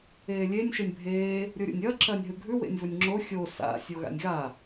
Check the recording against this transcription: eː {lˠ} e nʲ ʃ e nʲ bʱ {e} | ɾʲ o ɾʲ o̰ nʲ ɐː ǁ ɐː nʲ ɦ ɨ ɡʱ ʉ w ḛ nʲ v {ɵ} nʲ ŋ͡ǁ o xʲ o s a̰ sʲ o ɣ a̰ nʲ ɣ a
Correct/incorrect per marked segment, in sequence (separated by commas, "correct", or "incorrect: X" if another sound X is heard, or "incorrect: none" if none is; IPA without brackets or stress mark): incorrect: lʲ, incorrect: eː, correct